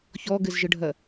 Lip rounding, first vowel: rounded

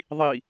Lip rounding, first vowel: unrounded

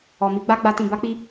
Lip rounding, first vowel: rounded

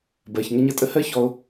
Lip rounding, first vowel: unrounded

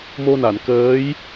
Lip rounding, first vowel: rounded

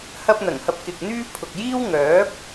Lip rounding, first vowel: unrounded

